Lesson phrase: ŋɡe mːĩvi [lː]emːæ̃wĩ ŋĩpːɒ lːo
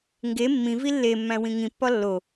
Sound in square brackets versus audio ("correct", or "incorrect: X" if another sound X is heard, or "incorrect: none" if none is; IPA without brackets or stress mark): correct